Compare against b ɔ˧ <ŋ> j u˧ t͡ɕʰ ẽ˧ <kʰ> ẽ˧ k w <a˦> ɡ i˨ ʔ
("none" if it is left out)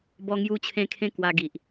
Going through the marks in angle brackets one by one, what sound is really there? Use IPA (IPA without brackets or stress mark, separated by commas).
ŋ, kʰ, a˧